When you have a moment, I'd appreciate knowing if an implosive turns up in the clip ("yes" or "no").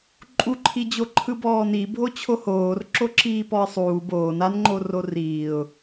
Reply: no